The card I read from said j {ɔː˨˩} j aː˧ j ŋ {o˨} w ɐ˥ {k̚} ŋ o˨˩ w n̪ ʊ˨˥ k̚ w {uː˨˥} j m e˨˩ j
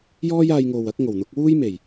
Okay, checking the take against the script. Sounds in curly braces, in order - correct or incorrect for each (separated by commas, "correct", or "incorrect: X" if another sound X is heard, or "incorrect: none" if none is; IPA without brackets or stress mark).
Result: incorrect: ɔː˥, correct, correct, incorrect: uː˥